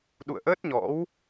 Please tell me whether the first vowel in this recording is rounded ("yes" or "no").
yes